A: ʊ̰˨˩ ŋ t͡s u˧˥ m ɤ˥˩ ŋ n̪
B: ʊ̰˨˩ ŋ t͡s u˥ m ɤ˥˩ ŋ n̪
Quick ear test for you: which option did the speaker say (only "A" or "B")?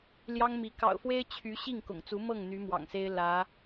A